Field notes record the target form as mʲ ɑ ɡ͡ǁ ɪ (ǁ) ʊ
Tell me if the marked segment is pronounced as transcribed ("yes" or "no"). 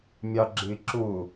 yes